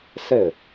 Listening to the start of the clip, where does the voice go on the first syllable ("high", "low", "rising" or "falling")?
falling